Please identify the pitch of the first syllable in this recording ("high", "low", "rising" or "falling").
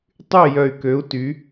falling